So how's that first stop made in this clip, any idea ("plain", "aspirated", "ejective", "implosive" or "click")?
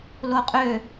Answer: ejective